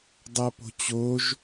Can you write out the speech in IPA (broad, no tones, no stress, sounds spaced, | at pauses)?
dˤ a p o̤ t͡ɕ o ʒ